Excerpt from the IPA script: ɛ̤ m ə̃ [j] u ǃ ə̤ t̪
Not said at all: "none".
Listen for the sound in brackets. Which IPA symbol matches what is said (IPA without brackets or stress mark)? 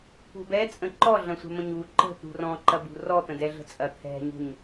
ɲ